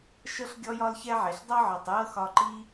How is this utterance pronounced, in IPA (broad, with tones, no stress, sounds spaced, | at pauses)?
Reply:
ʃ ɤ˥ ɬ ɡʲ ɔ˥ j ɒ˥ l ç ɛ˥ ʕ e˩ ɬ dˤ ɤ˥ ʕ ɔ˩ tˤ j ɤ˥ x ɒ˧ ǃ i˥